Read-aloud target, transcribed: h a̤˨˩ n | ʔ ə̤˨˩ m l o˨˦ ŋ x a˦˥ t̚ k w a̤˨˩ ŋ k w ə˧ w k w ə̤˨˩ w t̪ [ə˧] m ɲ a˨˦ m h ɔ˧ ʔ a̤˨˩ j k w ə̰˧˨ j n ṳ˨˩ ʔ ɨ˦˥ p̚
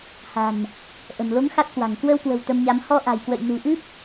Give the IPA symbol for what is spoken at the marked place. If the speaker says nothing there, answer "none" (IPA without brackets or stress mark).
ə˧